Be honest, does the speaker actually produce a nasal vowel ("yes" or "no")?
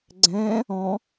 yes